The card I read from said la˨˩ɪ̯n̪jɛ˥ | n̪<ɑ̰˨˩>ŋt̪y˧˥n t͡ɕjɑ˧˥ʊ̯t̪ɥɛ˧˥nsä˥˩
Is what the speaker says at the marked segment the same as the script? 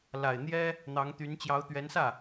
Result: no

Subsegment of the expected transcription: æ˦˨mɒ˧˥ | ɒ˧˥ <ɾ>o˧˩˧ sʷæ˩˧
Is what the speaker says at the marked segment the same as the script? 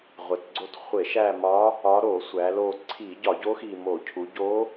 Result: yes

